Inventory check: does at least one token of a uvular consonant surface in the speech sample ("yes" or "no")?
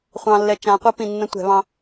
yes